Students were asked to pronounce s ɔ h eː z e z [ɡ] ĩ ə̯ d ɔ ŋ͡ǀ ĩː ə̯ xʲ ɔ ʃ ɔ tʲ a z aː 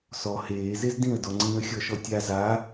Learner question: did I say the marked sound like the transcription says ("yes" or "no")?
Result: no